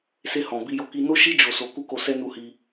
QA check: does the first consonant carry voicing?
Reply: no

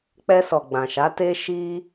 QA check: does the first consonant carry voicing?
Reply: no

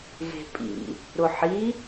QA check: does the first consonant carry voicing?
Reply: yes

